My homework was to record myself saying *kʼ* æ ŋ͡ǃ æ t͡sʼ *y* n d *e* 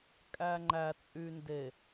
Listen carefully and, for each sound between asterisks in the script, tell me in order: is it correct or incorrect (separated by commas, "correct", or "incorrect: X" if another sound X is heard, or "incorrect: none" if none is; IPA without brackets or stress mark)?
correct, correct, correct